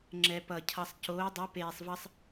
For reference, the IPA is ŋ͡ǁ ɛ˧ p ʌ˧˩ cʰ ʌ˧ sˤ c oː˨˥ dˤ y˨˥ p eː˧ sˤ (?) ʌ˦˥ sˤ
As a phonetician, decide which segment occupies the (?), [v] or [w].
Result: v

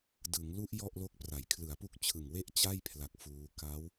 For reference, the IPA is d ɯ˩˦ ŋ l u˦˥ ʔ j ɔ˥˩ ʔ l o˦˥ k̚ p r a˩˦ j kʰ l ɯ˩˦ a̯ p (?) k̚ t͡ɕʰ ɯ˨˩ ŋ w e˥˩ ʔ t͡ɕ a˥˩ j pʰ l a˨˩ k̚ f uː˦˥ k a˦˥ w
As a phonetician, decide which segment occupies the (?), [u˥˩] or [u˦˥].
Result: u˦˥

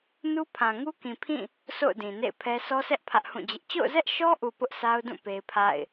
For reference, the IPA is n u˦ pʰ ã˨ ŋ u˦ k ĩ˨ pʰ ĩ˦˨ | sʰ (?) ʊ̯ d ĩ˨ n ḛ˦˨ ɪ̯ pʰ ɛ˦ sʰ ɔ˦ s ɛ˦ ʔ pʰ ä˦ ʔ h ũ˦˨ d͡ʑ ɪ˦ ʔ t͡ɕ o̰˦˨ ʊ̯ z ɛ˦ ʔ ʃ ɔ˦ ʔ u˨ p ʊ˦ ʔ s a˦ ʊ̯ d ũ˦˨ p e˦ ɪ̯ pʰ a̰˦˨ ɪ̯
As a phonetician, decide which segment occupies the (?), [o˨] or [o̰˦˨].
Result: o̰˦˨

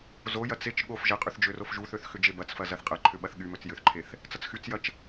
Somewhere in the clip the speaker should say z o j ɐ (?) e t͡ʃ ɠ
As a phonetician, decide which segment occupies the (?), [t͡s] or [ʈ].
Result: t͡s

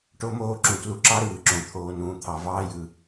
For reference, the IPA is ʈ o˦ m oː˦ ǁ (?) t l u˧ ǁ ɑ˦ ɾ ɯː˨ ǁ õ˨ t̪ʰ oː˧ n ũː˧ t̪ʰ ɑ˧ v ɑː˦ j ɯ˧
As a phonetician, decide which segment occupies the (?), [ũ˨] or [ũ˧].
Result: ũ˨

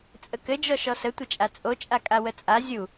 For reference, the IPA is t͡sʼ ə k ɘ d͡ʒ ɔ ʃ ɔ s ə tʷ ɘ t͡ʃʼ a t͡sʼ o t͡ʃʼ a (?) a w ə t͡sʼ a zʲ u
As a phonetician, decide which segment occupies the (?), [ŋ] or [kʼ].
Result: kʼ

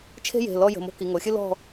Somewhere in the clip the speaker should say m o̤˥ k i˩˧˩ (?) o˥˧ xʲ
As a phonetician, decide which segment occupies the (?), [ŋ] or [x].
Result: ŋ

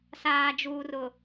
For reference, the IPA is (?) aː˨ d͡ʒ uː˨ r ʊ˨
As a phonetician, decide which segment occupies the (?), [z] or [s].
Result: s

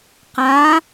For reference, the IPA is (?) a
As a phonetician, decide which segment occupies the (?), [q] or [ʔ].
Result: q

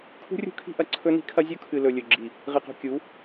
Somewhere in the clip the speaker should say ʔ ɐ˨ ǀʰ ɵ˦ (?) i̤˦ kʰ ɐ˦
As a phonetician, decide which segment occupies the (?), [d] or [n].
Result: n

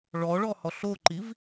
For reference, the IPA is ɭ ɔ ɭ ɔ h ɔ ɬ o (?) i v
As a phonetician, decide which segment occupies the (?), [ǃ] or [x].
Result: ǃ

